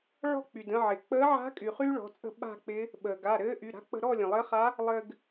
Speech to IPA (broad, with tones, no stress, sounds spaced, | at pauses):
ɭ ɔ̤˥˨ k͡p y˩ d ə̃˥˨ ʕ ɪ˩ k͡p əː˧˥ ʕ a̤˧˥ kʼ y˩ χ yː˥ ɭ ɔ̤˩˧˩ t͡sʼ ə̤˥˨ ɓ a̤˥˨ k͡p ɪ˧˥ | ɓ əː˩ ɡ a˩˧˩ ɾ ɘː˧˥ ʔ y˩˧˩ ɾ a̤˧˥ k͡p ə̤˧ ɾ ɔ˥˨ lʲ ə̃˩ lˠ ɘ˧˥ χ a˧˥ | lˠ ɘ˧ ɡ